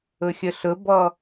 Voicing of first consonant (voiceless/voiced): voiceless